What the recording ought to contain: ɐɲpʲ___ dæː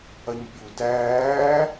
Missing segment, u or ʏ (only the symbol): u